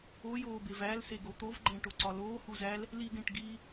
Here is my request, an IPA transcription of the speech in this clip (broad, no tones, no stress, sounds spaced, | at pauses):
o j oː b e v æ l s e ɡ o t̪ o v ɡ͡ǃ æ̃ ʈ o ǀ ɒ l oː h u z æ l | l i ɡ ẽ ʈ ɡ iː